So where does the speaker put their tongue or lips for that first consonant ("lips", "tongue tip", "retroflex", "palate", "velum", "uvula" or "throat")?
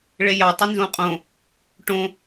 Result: retroflex